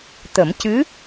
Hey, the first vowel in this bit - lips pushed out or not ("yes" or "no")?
no